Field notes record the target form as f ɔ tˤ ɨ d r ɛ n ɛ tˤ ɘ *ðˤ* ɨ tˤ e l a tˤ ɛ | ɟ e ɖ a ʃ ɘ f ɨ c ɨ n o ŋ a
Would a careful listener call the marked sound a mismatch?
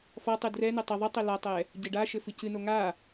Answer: no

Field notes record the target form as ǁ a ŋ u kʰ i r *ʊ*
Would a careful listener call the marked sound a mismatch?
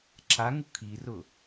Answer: no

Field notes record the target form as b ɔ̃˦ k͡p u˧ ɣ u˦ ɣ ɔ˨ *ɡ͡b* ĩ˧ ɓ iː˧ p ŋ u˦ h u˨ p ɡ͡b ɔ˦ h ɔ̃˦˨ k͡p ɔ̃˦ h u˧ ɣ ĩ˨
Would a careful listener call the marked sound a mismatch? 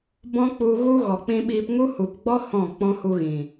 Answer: yes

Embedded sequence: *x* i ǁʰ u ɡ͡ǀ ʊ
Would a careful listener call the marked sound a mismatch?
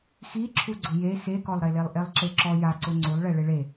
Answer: no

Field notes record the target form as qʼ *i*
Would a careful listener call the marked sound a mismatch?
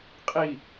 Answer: no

